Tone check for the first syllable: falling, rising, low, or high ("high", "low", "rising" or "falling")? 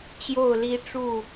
falling